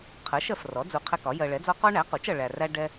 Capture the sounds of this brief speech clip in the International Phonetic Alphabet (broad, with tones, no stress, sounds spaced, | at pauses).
qʰ ɜ˩˥ ʃ ɜ˨ f r ɔ˩˥ d͡z u˨ qʰ ɛ˦ k ɒ˩˥ j ɜ˨ ɭ ɛ˩˥ d͡z ɔ˦ q ɔ˦ ɳ æ˩˥ q u˩˥ t͡ʃ ʌ˨ ɭ æ˨ r æ˦ ɖ ɛ˦